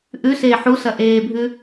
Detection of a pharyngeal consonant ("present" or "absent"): present